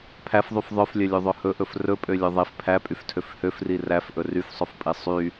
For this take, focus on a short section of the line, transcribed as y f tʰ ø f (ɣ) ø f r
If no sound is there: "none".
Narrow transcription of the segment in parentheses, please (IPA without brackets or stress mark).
h